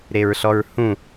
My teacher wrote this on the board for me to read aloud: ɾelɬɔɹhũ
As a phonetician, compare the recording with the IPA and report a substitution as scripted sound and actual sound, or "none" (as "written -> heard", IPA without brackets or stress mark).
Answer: l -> ɹ